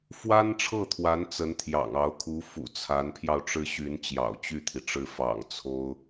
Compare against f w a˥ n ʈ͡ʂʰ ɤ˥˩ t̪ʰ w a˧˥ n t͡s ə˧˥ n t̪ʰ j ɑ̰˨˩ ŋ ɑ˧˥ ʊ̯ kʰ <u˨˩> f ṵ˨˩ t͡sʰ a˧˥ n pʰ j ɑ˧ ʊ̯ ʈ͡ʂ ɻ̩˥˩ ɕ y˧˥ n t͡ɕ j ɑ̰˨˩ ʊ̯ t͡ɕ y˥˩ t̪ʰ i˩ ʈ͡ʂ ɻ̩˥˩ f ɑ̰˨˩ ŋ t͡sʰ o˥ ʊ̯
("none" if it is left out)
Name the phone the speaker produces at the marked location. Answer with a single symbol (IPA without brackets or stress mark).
u˧˥